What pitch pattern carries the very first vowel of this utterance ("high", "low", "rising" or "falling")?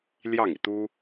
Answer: falling